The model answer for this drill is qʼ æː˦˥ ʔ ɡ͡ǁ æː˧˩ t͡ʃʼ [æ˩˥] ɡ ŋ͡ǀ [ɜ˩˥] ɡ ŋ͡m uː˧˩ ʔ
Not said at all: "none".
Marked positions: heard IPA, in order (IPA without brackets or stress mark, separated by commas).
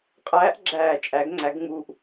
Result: æ˩˥, æ˩˥